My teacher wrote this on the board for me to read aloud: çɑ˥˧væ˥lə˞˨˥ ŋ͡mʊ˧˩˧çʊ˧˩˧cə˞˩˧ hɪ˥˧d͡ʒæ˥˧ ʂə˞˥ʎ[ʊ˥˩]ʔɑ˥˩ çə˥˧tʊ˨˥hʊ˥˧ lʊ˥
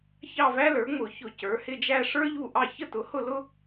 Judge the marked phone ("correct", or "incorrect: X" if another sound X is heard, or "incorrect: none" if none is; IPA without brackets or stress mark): incorrect: u˥˩